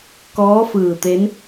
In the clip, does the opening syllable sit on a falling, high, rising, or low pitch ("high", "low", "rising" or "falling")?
rising